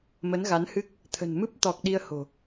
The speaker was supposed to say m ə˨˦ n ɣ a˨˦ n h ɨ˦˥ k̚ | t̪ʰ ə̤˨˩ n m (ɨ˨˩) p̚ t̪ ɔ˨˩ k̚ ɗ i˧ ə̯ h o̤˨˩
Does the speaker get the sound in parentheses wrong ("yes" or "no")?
yes